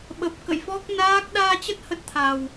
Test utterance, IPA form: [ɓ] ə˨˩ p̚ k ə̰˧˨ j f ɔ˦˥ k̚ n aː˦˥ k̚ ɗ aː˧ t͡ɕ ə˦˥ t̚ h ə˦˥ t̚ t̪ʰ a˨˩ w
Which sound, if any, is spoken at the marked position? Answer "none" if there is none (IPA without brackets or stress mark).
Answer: ɓ